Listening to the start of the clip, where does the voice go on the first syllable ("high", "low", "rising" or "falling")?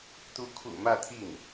rising